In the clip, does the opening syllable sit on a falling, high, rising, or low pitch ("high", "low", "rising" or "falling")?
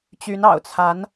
rising